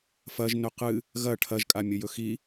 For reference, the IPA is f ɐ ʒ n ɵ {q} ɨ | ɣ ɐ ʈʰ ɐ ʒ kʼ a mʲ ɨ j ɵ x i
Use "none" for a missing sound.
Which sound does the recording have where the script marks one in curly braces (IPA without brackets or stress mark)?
q